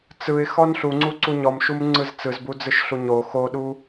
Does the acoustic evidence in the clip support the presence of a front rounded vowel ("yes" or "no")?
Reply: no